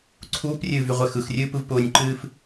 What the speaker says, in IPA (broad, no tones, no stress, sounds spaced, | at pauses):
ǀʰ uː p rʲ ɨː v y ʁʷ ɛ x ɯ x rʲ ɨː p ɯ v p ʊː nʲ ǃ ɨː f